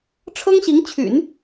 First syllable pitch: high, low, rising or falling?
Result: high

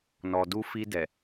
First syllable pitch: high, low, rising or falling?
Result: low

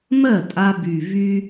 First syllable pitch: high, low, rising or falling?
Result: falling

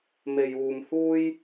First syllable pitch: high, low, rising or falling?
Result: low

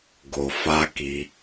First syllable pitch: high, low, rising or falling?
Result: low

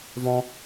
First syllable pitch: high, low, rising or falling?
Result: high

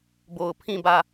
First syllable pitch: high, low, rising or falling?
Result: low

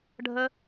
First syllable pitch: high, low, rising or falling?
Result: high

